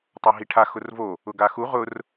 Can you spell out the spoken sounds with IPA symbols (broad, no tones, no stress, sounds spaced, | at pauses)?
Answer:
tˤ a ɦ i ʈʰ a x ʊ r v o | ʊ ɡ a x u ʁ ʊ r